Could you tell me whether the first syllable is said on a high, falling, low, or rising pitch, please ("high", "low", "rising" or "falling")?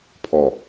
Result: low